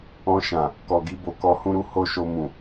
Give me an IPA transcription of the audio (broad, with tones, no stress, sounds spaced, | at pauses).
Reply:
ɔ̃˧ ʃ ã˨ | k ɔ˨ ɡ i˧ b o˨ k ɔ˧ h ũ˦ ɾ u˦ h o˦ ʃ o˧ m ũ˨